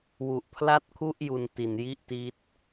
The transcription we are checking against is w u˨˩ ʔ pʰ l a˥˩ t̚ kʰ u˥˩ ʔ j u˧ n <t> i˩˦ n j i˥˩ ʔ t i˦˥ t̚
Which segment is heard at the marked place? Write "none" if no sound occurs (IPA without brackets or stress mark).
t